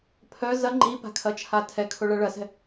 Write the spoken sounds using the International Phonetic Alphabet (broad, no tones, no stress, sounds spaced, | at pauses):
pʰ œ z ɐ ŋ͡ǃ i p a̤ kʰ ɐ t͡ʃʰ a tʰ ɛ kʰ o ɭ ɐ ɭ ɐ s ɛ̤